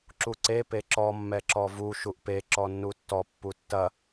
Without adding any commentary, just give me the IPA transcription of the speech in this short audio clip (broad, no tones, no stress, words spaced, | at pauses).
ǁuǀe peǁɔ mːɛǁɔvu ʃuʔpe ǁɔnːutːɔ pːutːɐ